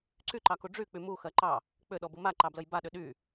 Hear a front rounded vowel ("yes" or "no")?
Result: yes